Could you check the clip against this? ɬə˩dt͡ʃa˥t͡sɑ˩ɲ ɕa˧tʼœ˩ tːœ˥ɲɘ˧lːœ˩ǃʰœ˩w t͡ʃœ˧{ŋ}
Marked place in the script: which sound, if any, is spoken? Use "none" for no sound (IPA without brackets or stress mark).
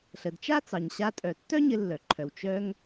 ŋ